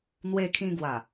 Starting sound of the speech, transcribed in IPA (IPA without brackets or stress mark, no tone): n̪